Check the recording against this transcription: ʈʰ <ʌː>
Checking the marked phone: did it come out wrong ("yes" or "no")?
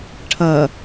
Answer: no